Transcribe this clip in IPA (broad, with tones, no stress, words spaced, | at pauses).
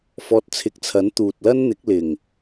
fɔː˧t̚t͡sʰɪ˨˥k̚t͡sʰɐ˨˥n t̪uː˨t̚lɐ˥nn̪ɪ˨˥k̚ lɪ˨˩ŋ